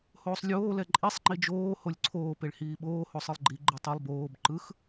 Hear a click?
yes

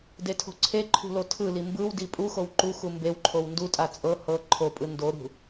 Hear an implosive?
no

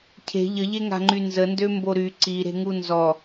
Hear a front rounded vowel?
yes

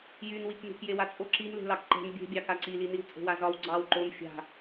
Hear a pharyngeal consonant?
no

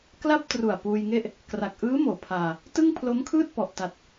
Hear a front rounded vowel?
no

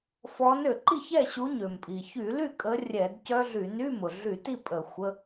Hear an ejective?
yes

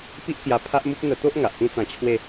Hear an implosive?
no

